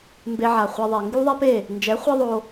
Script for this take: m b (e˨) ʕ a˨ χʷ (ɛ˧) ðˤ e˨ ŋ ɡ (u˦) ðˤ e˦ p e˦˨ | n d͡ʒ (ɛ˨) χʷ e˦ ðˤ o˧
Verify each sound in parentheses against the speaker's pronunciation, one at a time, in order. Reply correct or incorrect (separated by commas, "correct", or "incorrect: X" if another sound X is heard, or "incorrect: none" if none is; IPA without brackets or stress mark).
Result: incorrect: e˧, correct, correct, incorrect: ɛ˨˦